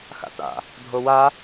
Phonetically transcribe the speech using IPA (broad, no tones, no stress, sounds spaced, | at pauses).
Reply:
x a̰ t a̰ | dʱ o w a